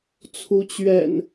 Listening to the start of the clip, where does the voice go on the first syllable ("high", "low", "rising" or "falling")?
rising